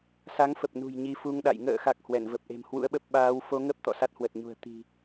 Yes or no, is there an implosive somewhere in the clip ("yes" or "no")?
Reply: yes